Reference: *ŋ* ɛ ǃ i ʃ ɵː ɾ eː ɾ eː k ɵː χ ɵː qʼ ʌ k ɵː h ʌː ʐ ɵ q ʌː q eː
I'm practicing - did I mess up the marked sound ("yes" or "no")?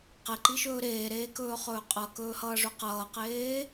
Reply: yes